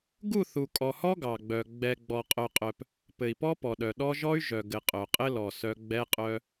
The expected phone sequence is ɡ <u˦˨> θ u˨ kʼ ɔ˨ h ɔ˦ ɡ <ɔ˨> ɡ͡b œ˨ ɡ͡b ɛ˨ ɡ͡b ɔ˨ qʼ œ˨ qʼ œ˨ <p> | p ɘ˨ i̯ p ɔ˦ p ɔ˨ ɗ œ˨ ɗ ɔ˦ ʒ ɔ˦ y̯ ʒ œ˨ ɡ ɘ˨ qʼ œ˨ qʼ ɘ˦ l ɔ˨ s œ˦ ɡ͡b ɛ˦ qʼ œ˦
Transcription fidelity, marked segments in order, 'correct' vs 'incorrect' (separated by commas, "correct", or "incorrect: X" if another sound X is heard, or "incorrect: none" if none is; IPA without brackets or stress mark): correct, incorrect: ɑ˨, correct